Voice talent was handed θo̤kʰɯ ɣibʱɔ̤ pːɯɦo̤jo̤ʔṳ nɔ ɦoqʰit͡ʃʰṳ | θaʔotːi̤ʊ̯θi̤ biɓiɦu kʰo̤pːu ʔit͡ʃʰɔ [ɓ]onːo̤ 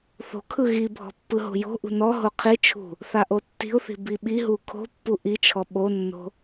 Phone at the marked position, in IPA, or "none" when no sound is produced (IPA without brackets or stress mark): ɓ